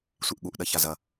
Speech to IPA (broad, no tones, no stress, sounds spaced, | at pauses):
sʷ i ʔ ɠ u ʔ ɗ ɐ ç a z ɐ